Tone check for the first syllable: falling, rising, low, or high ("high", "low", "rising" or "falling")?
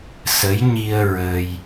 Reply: rising